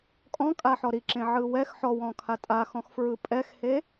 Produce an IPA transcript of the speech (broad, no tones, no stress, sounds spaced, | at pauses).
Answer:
kʼ ɔ̃ kʼ a ħ ɔ ɾ i ǁ ẽ ʕ ɯ w ɛ x ħ ɔ w ɔ̃ kʰ a tʼ a x ɔ̃ x f ɹ ɯ pʼ ɛ x h e